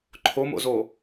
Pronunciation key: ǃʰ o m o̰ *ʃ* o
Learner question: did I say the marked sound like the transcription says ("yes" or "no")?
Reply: no